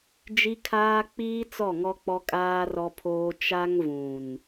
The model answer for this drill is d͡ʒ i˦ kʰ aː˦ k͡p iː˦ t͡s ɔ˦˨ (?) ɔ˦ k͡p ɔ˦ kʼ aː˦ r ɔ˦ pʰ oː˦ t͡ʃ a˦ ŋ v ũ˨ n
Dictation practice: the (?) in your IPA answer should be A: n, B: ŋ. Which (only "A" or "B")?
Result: B